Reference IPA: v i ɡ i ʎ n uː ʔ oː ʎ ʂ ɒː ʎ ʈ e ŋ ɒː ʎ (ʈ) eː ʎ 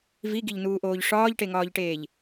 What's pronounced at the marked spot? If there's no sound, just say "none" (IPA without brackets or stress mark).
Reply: ʈ